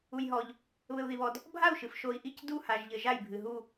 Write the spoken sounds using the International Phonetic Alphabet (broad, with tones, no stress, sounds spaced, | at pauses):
u˨ j ɦ ɔ˨ ʎ | β ɘ˨ u̯ ð i˨ β ɔ˨ d | bʱ a˦˨ u̯ ʃ ɨ˨ f ʃ o˨ i̯ ʔ i˦˨ c d u˦˨ h a˨ ʒ ʎ ɘ˨ ʒ a˦˨ j bʱ ɨ˨ ɦ u˦˨